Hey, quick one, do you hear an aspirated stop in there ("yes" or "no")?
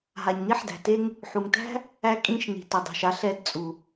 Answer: no